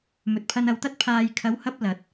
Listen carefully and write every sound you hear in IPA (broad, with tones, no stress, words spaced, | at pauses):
mɵ˨t̚pʰɐ˧nɐ˨wt̪ɐ˥t̚ pʰaː˧j kʰɐ˨˧whɐ˧p̚ lɐ˨t̚